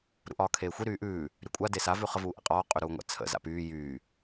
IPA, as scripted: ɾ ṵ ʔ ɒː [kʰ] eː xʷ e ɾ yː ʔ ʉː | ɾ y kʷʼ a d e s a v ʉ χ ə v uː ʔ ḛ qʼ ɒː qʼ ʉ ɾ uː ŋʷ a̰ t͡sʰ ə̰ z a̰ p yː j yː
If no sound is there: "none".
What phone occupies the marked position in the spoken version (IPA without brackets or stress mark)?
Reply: kʰ